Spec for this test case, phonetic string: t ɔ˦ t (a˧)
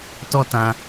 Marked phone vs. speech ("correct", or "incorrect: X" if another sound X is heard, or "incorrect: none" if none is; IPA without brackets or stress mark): incorrect: ã˧